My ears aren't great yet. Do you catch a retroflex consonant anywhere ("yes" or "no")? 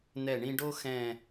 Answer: yes